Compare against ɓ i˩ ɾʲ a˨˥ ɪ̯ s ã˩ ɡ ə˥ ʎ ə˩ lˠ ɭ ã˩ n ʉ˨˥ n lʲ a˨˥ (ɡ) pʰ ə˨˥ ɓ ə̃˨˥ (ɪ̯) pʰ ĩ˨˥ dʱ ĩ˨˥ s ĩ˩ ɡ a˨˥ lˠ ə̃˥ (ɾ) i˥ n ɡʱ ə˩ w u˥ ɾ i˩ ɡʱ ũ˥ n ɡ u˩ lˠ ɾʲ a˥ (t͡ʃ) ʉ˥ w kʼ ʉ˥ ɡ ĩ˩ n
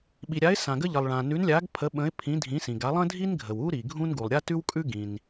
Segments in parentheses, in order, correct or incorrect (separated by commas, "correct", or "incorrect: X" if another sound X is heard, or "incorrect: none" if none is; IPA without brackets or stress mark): correct, correct, incorrect: dʱ, incorrect: t